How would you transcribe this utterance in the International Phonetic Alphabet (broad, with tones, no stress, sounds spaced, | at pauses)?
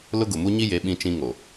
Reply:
l ʊ˦ ɡ ʊ˨ m u˦ ɲ i˦ j e˨˦ ɓ ĩ˦ t͡ʃ ĩ˦ ŋ o˨